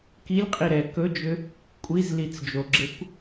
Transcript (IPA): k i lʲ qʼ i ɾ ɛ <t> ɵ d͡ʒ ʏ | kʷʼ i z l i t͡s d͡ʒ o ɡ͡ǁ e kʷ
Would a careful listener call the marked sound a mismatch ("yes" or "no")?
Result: yes